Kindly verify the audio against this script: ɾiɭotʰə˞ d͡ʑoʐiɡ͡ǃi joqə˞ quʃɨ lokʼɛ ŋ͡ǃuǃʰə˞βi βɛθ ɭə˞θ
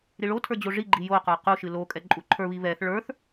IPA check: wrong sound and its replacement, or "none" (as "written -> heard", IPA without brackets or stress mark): ŋ͡ǃ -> ǃʼ